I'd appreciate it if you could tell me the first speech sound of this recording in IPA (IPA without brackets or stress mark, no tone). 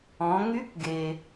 ɔ̃